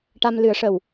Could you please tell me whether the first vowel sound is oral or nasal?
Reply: oral